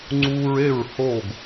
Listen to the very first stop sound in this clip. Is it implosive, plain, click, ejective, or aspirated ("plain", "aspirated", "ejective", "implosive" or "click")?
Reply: click